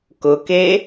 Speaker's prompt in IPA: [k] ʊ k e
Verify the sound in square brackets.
correct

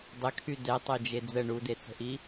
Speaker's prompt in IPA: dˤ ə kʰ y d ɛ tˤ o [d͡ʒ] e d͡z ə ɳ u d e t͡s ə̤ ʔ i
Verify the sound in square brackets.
correct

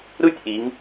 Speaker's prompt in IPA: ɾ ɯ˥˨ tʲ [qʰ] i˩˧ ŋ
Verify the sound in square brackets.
incorrect: ʔ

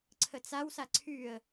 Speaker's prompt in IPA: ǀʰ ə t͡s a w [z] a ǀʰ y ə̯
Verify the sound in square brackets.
incorrect: s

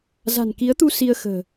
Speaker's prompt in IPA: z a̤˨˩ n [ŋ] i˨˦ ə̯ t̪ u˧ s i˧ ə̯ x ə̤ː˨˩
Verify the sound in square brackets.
incorrect: k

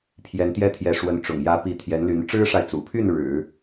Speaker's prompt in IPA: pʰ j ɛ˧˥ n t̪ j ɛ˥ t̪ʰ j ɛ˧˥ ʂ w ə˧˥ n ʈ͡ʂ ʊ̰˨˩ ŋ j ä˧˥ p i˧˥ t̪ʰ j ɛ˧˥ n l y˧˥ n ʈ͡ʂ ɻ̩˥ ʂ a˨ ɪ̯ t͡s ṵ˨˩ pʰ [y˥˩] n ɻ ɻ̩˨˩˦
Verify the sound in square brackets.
correct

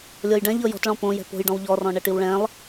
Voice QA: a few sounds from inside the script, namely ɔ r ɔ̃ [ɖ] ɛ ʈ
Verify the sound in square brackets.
incorrect: ɳ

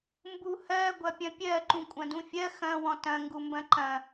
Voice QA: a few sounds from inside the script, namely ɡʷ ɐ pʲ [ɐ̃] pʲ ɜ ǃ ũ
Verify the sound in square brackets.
correct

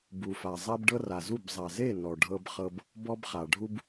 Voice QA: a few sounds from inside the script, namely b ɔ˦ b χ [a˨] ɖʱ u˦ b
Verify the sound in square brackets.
correct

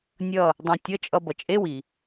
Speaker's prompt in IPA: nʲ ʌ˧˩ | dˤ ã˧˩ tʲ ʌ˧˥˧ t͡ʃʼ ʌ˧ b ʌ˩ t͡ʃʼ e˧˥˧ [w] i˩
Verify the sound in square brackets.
correct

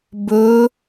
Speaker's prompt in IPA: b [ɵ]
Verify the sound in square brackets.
correct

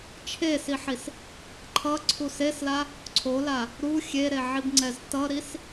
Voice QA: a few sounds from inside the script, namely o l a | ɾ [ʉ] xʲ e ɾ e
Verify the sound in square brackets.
incorrect: u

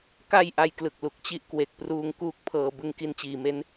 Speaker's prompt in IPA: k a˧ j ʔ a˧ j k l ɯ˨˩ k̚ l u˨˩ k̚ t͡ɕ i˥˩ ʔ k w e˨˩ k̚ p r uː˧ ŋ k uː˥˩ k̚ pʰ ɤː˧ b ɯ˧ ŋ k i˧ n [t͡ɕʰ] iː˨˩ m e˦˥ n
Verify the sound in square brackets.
incorrect: t͡ɕ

